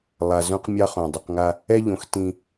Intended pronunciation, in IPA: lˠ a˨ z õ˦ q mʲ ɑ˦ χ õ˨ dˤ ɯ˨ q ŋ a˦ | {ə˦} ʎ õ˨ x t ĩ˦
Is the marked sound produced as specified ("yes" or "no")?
no